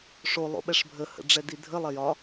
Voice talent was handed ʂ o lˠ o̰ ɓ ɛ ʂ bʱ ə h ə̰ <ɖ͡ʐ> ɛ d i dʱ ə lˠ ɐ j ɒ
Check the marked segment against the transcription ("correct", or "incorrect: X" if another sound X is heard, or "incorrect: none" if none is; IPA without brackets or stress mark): correct